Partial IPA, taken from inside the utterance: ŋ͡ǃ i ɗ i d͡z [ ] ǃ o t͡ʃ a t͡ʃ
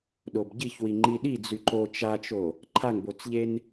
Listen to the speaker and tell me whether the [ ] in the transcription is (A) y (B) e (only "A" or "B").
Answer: A